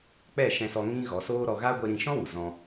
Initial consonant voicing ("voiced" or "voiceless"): voiceless